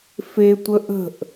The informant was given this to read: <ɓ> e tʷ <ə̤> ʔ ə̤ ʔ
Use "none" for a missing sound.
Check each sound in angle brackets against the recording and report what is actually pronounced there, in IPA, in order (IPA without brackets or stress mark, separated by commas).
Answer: f, ə